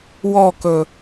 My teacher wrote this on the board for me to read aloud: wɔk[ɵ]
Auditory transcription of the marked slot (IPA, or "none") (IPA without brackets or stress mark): ɵ